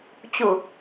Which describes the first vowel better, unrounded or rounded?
rounded